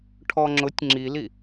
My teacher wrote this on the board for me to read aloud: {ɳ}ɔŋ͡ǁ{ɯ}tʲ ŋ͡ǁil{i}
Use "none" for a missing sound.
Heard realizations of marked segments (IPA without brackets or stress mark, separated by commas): ʈʰ, ʊ, i